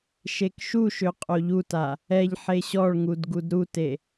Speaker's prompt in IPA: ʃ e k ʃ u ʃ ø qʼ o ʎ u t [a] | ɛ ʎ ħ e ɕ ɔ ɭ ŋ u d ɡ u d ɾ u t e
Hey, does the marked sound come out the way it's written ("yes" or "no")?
yes